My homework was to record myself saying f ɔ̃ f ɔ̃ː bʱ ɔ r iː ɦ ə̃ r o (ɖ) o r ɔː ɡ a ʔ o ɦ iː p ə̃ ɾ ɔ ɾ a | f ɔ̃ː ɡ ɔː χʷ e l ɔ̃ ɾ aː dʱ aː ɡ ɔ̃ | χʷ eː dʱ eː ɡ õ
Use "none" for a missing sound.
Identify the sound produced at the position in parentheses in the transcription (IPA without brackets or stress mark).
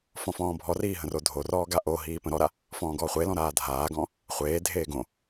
dʱ